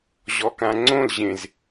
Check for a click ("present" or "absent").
present